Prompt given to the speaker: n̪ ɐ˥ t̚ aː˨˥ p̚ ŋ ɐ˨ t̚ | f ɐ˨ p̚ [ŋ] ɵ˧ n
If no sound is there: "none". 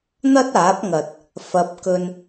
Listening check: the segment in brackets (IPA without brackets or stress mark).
k